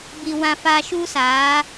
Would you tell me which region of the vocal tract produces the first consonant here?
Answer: lips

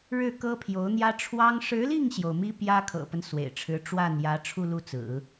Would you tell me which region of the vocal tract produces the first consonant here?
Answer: retroflex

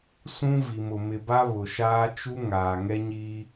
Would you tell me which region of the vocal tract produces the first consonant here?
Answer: tongue tip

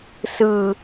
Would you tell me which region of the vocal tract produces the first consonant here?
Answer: tongue tip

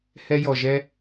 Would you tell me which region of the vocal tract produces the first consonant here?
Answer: throat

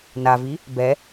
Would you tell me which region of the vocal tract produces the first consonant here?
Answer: tongue tip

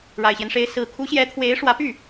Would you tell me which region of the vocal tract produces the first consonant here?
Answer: retroflex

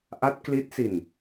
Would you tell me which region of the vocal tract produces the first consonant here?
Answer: throat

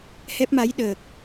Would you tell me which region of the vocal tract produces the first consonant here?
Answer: throat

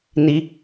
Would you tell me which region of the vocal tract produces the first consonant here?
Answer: tongue tip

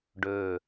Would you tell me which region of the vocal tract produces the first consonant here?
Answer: retroflex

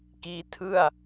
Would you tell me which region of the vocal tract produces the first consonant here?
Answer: velum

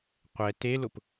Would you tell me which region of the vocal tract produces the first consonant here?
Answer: uvula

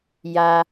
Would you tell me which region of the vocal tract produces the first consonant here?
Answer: palate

